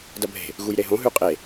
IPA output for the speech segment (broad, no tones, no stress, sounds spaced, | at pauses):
d ɐ bʱ e̤ | ɣ u j ɾ e ɦ õ ɦ ʉ qʼ e